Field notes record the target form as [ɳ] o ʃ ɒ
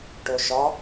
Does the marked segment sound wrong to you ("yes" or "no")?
yes